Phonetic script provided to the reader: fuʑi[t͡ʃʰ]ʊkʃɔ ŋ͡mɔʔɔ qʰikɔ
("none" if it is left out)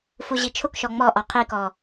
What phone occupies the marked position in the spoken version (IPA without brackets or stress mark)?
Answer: t͡ʃʰ